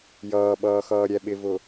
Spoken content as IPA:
jʌːɓʌːxʌːɾʲɛ ɓɪvʊ

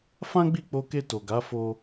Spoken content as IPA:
fã˦ɡ͡bi˦˨k͡po˧ke˧ to˨ɡa˨˦ fo˧

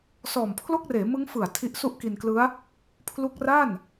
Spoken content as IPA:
sɔː˨˩mpʰlo˥˩k̚reː˩˦mɯ˦˥ŋ fɯ˨˩a̯ tʰi˦˥ʔsu˥˩ʔki˧nklɯ˦˥a̯ | pʰlu˦˥k̚ra˥˩n

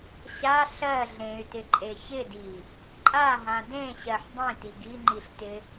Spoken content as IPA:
ɕa ɬɜ ɮẽy̯tɪǃʼe çɪdi | ǃʼaɦã dẽɕɜħ dˤĩti ɡiŋ͡ǃiɬtɪ

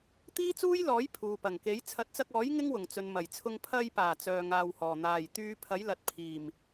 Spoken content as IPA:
t̪iː˥t͡suː˥jlɔː˨˥j pʰuː˨pɐ˨˩ŋke˨˥j t͡sʰɐ˨˥t̚t͡sɐ˧k̚ɔː˨˥j ŋɪ˥ŋwʊ˨˩ŋt͡sɵ˨n mɐ˨˩jt͡sʰʊ˧ŋ pʰɐ˧jpaː˨˩ t͡sœː˧ŋaː˧whɔː˨˩ n̪aː˨˩jt̪yː˧ pʰɐ˨˥jlɐ˨t̚pʰiː˨˩m

